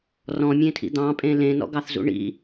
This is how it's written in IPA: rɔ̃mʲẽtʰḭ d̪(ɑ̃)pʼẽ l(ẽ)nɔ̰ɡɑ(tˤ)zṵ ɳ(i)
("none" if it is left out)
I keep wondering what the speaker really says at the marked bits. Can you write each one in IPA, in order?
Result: ɑ̃, ẽ, θ, ḭ

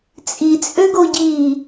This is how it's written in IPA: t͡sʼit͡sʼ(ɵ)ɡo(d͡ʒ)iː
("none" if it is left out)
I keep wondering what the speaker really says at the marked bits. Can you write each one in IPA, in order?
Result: ø, ɟ

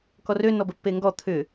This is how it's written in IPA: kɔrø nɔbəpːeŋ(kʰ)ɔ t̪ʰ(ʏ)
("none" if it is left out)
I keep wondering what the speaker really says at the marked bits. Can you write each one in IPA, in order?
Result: ɡ, ʏ

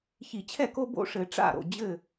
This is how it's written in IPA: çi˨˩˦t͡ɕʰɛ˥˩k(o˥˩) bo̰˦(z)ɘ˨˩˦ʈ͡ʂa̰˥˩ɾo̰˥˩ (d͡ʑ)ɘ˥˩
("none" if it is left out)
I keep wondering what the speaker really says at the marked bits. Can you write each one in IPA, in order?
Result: o˦, ʂ, d͡ʑ

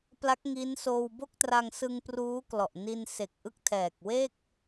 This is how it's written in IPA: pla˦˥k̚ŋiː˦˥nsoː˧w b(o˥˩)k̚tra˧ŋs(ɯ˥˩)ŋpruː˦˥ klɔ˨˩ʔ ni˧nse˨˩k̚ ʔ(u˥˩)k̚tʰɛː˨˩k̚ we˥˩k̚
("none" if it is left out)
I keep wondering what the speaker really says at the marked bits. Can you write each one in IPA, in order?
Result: o˥˩, ɯ˧, ɯ˥˩

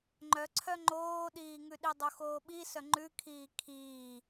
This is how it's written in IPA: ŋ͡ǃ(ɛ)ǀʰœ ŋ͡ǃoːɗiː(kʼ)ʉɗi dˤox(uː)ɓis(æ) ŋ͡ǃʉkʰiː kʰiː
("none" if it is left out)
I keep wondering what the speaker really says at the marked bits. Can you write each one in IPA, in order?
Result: œ, ŋ, oː, œ

